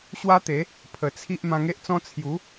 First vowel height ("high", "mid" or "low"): low